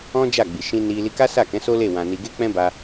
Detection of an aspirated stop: absent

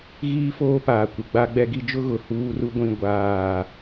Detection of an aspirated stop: absent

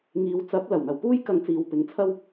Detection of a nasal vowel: absent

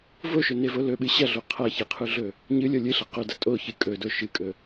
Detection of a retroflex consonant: absent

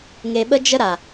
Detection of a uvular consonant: absent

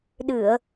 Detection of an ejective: absent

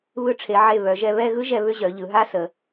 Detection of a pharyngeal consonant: present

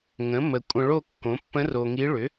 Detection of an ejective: present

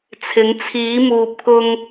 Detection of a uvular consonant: absent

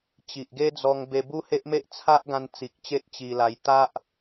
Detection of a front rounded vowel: absent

